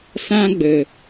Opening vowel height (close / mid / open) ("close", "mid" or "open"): open